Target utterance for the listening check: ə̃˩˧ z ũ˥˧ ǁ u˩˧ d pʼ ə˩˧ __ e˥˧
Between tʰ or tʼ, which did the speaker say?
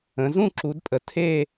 tʰ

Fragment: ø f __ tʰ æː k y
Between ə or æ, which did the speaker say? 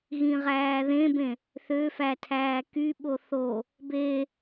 æ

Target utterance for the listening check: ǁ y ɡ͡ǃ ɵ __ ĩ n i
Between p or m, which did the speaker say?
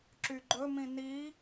m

